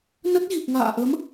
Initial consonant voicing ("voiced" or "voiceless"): voiced